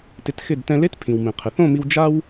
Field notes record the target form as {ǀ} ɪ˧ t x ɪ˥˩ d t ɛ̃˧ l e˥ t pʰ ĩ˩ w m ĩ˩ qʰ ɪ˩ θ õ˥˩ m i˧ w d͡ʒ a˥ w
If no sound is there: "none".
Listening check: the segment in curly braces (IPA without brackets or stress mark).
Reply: t